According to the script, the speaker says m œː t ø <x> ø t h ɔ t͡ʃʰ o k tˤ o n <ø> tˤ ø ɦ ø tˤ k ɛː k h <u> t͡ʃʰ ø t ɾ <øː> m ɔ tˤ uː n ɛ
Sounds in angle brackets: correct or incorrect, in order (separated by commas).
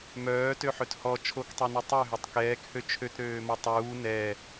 incorrect, incorrect, incorrect, correct